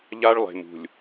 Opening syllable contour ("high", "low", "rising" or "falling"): high